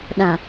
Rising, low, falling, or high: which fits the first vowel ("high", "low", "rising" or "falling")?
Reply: low